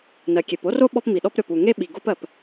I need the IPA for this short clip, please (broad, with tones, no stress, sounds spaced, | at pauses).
n ɜ˩ kʲ e˩ p o˥ r o˥ ɓ ɔ˥ p m i˩ ɗ ɔ˥ p ɾʲ ɔ˩ p u˩ ŋ e˥ ɓ i˩ ɡ o˥ p ɜ˩ p